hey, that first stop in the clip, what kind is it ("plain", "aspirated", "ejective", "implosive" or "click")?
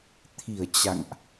aspirated